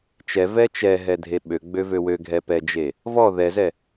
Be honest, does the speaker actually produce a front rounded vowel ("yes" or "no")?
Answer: yes